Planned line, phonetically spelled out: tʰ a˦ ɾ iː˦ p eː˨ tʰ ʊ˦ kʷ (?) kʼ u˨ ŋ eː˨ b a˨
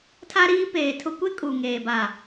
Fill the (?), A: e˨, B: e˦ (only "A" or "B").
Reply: B